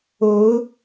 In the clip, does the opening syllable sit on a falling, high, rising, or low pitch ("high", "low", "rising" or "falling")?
rising